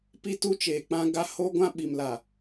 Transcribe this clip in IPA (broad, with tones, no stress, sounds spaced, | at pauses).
p i˦ t u˦ t͡ʃ eː˨ k͡p ã˦ ɡ a˦ h o˦ ɡʷ ã˦ ɓ i˨ m l a˨